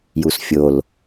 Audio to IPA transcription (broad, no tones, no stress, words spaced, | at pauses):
jusfʲol